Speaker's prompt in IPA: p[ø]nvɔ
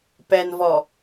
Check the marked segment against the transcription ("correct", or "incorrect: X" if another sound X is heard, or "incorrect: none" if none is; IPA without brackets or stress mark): incorrect: ɛ